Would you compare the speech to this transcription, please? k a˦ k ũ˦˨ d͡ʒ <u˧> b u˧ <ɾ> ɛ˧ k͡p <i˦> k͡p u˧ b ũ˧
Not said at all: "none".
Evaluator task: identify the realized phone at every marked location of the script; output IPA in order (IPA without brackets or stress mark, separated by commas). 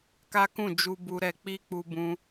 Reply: u˧, ɾ, i˦